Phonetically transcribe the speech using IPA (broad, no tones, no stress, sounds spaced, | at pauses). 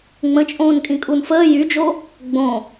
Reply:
ŋ͡m ə̃ t͡ʃʼ õː n kʼ ĩ kʼ u n f əː j y d͡ʒ o | ɡ͡b õ